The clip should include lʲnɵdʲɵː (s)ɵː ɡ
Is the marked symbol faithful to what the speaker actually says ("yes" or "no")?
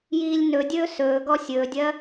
yes